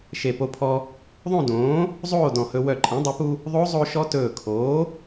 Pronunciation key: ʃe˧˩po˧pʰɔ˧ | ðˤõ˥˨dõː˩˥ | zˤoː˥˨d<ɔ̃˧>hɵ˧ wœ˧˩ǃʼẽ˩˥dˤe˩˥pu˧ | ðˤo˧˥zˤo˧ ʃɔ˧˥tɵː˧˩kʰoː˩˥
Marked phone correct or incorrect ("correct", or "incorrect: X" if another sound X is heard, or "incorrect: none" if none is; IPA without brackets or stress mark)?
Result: incorrect: ɔ̃˧˩